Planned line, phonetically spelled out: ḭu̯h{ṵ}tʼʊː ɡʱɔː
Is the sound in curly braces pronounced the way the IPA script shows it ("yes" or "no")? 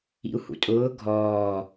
yes